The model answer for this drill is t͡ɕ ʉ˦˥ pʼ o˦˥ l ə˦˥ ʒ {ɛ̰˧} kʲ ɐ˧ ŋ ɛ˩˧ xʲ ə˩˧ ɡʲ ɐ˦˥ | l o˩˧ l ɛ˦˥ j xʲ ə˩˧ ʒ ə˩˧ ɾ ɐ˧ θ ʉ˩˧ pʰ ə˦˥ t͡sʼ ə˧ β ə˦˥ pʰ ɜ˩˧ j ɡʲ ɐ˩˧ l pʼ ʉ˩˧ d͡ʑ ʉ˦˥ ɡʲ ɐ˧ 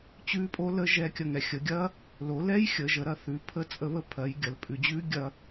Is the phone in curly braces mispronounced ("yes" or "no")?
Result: yes